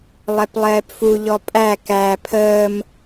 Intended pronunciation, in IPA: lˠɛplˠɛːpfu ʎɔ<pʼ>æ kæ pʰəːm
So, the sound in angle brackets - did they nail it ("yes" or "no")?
yes